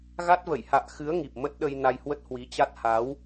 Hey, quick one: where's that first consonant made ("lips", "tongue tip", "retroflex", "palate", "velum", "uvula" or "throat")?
velum